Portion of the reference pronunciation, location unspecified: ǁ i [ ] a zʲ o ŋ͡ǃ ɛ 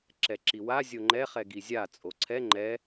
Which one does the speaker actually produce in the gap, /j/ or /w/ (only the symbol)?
w